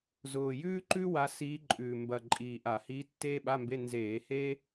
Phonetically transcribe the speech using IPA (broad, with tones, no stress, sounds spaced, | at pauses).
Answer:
z ʊː˨˩ j ʉː˥ ǃ ʉ˥ w a˧˥ s iː˧˥ ǃʼ ʉː˨˩ m b ɐ˨˩ ǃʼ iː˨˩ ʔ a˧˩˧ h iː˧˥ tː eː˥ ɓ a˧˥˧ m b e˧˥˧ n z eː˧˩˧ h e˥